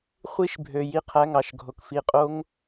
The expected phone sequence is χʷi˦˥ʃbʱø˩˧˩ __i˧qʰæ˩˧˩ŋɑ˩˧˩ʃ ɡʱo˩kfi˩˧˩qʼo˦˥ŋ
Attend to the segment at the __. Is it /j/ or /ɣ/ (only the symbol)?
j